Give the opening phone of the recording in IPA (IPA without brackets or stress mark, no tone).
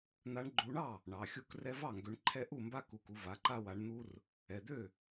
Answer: n̪